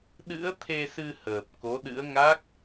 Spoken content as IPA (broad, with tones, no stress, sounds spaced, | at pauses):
ɗ ɨ̰˧˥ ə̯ t̪ʰ e˧ s ɨ˧ h əː˨˩ p̚ k o˨˦ ɗ ɨ̰˧˥ ə̯ ŋ a˦˥ k̚